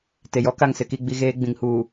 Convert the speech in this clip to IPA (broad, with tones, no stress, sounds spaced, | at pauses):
t e˨ j ɔ˦ k a˦˨ ŋ s ɪ˦ k i˦ ɡ͡b i˦ ɣ eː˦ ɡ͡b ĩ˨ ŋ h uː˨